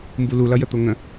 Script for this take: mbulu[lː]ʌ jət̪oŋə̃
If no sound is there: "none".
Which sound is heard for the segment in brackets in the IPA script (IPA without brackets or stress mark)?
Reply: l